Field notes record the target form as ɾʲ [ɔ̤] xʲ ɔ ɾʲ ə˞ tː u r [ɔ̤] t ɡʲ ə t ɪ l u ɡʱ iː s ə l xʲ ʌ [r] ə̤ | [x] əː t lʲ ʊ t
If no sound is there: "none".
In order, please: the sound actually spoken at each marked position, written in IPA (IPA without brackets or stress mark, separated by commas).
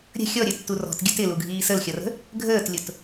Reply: ə̤, ɔ̤, r, ɡʱ